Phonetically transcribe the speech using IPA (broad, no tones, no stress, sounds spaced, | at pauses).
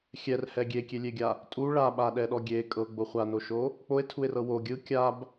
xʲ ɛ r h ɛ ɡʲ e kʲ e lʲ e ɡʲ a | tʼ u ɭ a ɓ a ɗ ɛ ɗ ɔ ɡʲ e kʼ ɤ ɡ͡b o χʷ a n o ʃ o | k͡p o e̯ tʰ u e̯ r ɤ w o ɡʲ ɯ kʲ a b